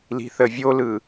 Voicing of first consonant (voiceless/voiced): voiced